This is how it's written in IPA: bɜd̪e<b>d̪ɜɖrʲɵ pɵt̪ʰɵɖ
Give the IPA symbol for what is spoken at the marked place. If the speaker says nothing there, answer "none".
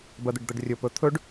ɖ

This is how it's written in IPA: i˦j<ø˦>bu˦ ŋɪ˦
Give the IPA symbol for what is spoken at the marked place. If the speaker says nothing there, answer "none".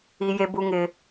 e˦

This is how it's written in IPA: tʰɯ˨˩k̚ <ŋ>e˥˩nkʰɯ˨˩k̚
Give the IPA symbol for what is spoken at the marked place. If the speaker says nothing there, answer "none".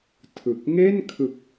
ŋ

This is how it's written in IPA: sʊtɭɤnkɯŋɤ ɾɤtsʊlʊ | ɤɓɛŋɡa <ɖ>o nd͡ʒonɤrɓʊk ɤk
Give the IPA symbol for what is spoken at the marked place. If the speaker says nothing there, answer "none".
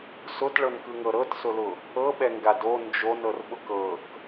d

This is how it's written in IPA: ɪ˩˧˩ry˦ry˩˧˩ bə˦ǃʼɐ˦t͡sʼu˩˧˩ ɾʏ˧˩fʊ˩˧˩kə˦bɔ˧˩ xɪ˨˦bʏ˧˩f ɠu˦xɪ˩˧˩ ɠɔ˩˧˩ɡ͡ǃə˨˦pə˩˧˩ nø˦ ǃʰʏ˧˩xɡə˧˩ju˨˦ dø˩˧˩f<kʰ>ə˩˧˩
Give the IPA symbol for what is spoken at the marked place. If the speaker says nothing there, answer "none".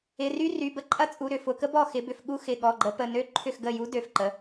ǃ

